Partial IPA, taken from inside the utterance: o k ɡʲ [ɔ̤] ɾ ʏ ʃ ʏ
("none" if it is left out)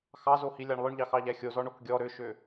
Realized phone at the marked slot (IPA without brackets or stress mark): ɔ